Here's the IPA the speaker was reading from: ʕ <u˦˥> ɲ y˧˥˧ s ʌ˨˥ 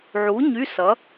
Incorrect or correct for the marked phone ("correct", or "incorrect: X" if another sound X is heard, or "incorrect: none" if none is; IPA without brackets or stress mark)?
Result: incorrect: u˨˥